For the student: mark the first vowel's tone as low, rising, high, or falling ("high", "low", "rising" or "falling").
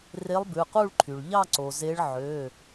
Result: rising